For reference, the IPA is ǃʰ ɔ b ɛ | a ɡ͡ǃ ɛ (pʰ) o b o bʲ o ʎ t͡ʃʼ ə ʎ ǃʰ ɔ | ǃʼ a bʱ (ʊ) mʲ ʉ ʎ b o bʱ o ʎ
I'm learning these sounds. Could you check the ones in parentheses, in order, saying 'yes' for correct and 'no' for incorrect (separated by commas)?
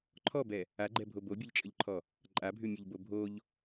no, no